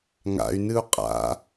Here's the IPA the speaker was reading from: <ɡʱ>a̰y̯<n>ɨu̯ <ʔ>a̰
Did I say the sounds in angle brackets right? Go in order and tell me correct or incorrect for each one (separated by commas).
incorrect, correct, incorrect